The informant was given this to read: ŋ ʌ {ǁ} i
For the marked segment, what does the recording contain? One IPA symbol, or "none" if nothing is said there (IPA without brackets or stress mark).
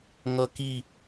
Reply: k